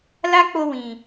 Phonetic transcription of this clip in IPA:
la˦k͡po˧ wĩ˨

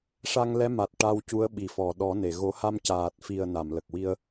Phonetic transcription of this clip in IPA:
ʂa˧ŋlɛ˧˥ma˨˩t̚ ʈa˧wcu˧˥ə̯ɓi˨˩˨fɔ˨˩˨ ɗɔ˨˩˦ne˨˩˨ ɣo˨˩˦ha˧mcaː˨˩t̚fi˨˩ə̯ na˨˩˨mlə˨˩k̚wi˧ə̯

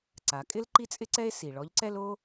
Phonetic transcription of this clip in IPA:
ǀa˩˧kʼɪ˥l ǃi˥t͡sʼɪ˥ǀɛ˥e̯ si˩ɭɔ˧˥ʎǀɛ˥l o˥

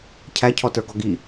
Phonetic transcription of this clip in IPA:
cʰæcʰɔtə˞ɡɔ ɡi

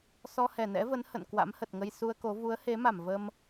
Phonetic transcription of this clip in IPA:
sɔ˧hɛ˧˩nɛ̰˧˥və˨˦n hə̰˧˨n kwa̰˧˥mhə˨˩t̚ŋə˧j su˧ə̯ko˨˦ vu˨˦ə̯he˨˦ma˧˩m və˧m

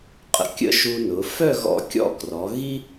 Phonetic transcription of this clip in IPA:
qʼə̰˧˩kʲə̰˥ʃu˧nʊ˩˧ fœ˥˧ɣɔ̰˧ kʲɔ̰˥˧krɔ˩˧ ɣi˥

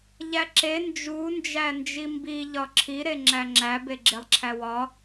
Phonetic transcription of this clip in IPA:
ʎæǁe nd͡ʒu nd͡ʒænd͡ʒimbi ʎɒǁʰi ɾeŋ͡ǁæŋ͡ǁæb eɡ͡ǁelˠǁʰæwɒ

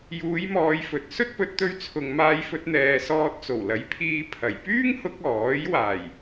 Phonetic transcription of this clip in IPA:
juː˨˧jmɔː˨j fɵ˨t̚ sɵ˥t̚pɵ˨˥t̚t̪ɵ˧ɥ t͡sʰʊ˨ŋmaː˧jfɵ˧t̚ n̪ɛː˨sɔː˧t̚t͡so˨˩w lɐ˨˥jpʰiː˧ pʰɐ˨˩j pyː˥ŋhʊ˧k̚ ɔː˨˥j waː˨˩j

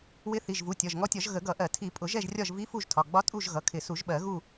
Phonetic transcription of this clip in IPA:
wɪ˧˥θi˩˧˩ʒvu˩˧˩ tʲɒ˩˧˩ʒŋɔ˧˥tʲɒ˨˩˦ʒ ɣə˨˩˦ɡʌ˨˩˦ʔɜ˨˩˦ tʰi˨˩˦ pʼʊ˨˩˦ʒɛ˦˨ʒrʲɒ˦˨ʒ vi˧˥ fu˦˨ʒtʰɒ˩˧˩ɡ͡bɒ˧˥ tʼu˦˨ʒ ɣʌ˩˧˩kʰɪ˨˩˦su˨˩˦ʒɓɜ˨˩˦ ɣu˦˨

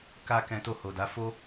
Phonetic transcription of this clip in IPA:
ka˧kɛ̃˧ to˧ho˨da˨˦fo˦

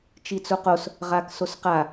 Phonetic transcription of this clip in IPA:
t͡ʃit͡suqos | ʁaksosqa

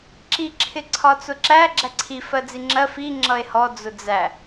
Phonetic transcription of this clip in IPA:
ǁi ǁʰɪǀʰɒt͡sʊǁæ ɡ͡ǁæǀʰi fɜd͡ziŋ͡ǁɜ fi ŋ͡ǁʌe̯hɔ d͡zʊd͡zæ

